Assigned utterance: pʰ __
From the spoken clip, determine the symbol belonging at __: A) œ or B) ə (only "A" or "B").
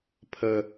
B